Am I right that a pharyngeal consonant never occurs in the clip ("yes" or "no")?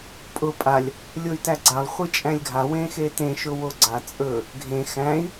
yes